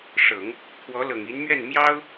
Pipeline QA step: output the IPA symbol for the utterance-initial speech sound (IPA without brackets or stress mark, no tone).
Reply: ʂ